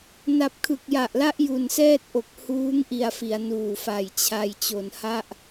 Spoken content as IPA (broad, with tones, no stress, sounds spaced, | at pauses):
n a˨˩ p̚ kʰ ɯ˨˩ k̚ j a˨˩ ʔ l a˦˥ ʔ j u˨˩ n s ɛː˥˩ t̚ ʔ o˨˩ k̚ h uː˦˥ ŋ ʔ i˨˩ a̯ f i˩˦ a̯ n uː˨˩ f a˨˩ j t͡ɕʰ a˧ j t͡ɕ o˩˦ n h a˥˩ ʔ